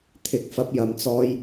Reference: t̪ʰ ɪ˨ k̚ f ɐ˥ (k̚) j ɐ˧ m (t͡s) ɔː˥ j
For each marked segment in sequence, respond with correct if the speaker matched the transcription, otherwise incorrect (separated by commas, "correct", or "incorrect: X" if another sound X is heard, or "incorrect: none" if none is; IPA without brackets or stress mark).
incorrect: p̚, correct